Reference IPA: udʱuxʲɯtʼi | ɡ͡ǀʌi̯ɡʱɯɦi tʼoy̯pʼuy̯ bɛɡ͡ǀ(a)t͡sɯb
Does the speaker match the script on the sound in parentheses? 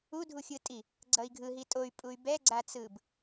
yes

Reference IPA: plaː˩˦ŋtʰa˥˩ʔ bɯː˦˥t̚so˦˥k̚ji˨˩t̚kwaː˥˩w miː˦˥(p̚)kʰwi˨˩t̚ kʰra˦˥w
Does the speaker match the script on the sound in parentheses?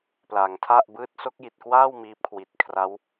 yes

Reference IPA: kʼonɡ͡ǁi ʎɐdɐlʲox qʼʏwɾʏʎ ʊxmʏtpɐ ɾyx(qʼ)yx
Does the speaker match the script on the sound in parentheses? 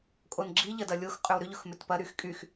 no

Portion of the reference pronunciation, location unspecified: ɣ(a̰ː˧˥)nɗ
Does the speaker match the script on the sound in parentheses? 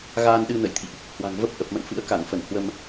no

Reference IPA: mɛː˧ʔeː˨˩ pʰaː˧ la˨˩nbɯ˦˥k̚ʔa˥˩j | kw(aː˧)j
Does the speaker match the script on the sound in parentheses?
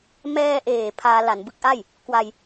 no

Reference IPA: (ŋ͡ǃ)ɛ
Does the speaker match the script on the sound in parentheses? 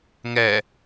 no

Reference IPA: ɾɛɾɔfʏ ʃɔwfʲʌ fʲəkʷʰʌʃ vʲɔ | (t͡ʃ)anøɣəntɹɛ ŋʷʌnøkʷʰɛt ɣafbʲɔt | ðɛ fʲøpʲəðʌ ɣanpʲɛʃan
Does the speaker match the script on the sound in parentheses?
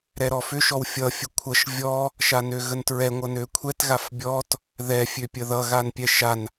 no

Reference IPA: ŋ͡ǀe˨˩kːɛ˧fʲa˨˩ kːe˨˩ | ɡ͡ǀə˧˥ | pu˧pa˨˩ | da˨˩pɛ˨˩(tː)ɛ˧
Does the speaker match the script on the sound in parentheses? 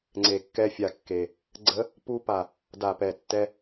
yes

